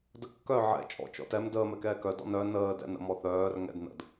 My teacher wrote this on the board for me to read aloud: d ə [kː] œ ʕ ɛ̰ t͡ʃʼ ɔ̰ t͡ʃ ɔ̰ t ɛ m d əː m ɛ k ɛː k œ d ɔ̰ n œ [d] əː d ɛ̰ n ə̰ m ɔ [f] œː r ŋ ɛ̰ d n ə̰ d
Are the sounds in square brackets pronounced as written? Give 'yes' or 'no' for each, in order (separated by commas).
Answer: yes, no, no